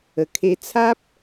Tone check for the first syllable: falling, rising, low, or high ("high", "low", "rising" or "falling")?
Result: low